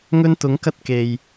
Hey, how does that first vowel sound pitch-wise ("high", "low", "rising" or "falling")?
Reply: high